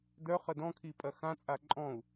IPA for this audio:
d œ χ ə d ɔ̃ kʰ i pʼ ɐ x ã t͡sʼ a ǃʼ ɔ̃ u̯

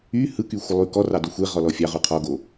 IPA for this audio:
y h ɯ k y xʷ ə lˠ y k ɔ r ɑ d o xʷ e ʁ ɔ l ɔ fʲ ɑ ʁ u qʰ ɔ ɡ o

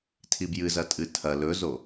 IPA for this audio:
tʰ i b j ɨ z ɐ tʼ ɨ tʰ ɐ l ɵ z o

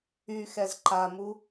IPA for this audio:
y x ɛ z ǃ a m u

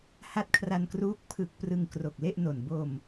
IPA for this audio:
h a˦˥ t̚ kʰ r a˧ n k r uː˦˥ k̚ pʰ ɯ˨˩ k̚ p r ɯ˧ ŋ k r o˨˩ k̚ l e˥˩ ʔ n o˨˩ n b o˧ m

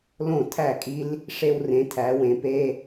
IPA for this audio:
l õ˥˩ tʰ æ˥˩ kʼ i˦˥ l | ʂ e˦˥ w r ẽ˨˦ tʰ æ˨˦ w ẽ˨˦ p e˧˥˧

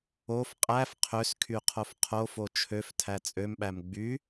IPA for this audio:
o f qʼ æ f qʰ ø s kʰ y qʰ o f qʰ o f o t͡ʃʰ ø f tʰ æ t͡sʼ ø m ɓ æ m ɡ͡b y

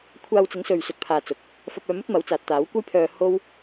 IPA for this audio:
kʷʰ aː˧ w t͡s ɪ˨˥ ŋ s ɵ˨ ɥ s ɵ˨ t̚ pʰ aː˨ t͡s ʊ˨ k̚ | f ɐ˧ p̚ œː˧ m ɵ˥ t̚ m ɐ˨˥ w t͡s aː˨ t̚ t̪ aː˨˥ w kʷ ɐ˥ j pʰ œː˧ h o˥ w

